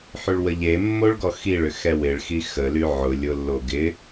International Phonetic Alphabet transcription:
ħyɭwəʎemːoɭ ɡɔxiɭʏ xɛwɪɭxi xəly ʕʊ lʲʊlːo ɡɪ

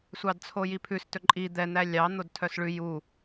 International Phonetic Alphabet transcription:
sʷɑdt͡sʰojipʰʉs tɵǃʼi d̪ɛ n̪ælʲɑ n̪odtʰœsɭʉ ju

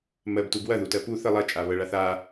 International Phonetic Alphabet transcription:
mɜbtub wɐðutɜ pu θə lˠɐt͡ʃʼaβɜɭa θa

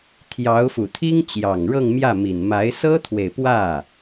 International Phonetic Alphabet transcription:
t̪ʰjɑ˧˥ʊ̯fu˨˩t̪ʰi˥ŋ t͡ɕjɑ˨˩ŋɻɤ˥˧ŋmjä˥˩mi˨˩n ma˧˥ɪ̯sɤ˥t̪ʰwe˨ɪ̯pwä˥˩

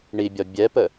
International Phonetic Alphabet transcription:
ɳibʲɒ bʲɛpə

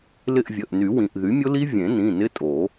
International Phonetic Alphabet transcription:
lɪ˦˨ʔvʲə˩˧˩ʔny˨˩˦ wĩ˩ʔ ðy˩˥mʲʊ˦˥li˦˥ vʲẽ˨˩˦nĩ˩˧˩ nɪ˦˥tʼo˨˩˦

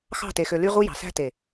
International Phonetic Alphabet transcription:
xɑ̤˦˨te˨xø˨ly˦ ʁu˦jɑ̤˨ sæ̤˦te˨

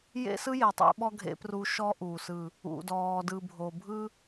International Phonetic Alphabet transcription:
jḛ˦sɯ˦ je˨tˤḛ˦ɓɔ˦ ɡʱḛ˦pru˦ ʃɔ˦ ʔuː˨sɯ˦˨ | ṵ˨dɔː˨dɯ˨ bʱo˨bʱɯ˦

